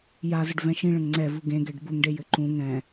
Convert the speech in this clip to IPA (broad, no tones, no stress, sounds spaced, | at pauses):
j a z ə ɖ v ɛ̃ ʃ ĩ ɭ ə̃ ŋ ŋ͡ǀ ɛ v u ɡ ẽ ɡ ɛ ɖ b u ŋ ɖ e j ɘ ǃ ũ ŋ ɛ̃